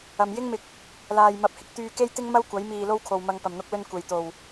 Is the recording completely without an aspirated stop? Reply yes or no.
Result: no